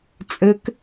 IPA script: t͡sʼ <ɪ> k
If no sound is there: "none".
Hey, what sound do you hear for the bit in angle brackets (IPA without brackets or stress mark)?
ə